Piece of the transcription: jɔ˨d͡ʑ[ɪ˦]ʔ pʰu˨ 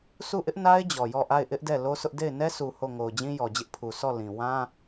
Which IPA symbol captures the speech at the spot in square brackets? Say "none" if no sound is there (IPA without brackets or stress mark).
ɪ˦